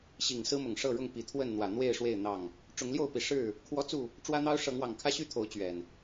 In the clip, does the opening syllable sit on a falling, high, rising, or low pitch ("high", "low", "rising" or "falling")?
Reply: low